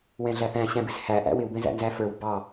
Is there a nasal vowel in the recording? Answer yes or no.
yes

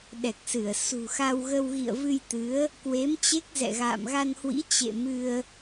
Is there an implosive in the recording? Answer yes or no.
yes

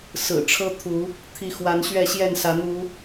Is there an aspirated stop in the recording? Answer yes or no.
yes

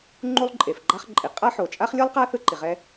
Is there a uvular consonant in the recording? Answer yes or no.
yes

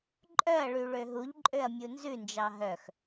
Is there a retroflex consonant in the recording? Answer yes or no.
yes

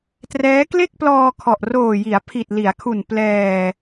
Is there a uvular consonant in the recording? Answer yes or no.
no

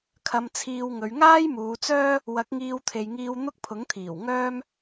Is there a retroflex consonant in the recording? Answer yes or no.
no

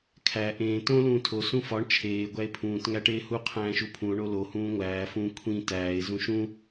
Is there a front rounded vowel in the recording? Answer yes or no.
no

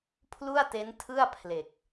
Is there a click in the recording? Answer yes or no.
no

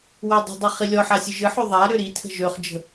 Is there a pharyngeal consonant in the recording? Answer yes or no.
yes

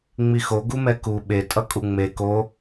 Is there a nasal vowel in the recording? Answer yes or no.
no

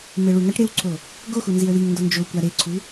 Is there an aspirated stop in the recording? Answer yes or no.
yes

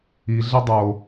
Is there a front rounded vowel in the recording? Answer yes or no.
no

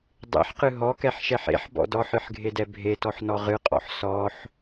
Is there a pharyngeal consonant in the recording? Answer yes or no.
yes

